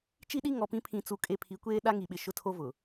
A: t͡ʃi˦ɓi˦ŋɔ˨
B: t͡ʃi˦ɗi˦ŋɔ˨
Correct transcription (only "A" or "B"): B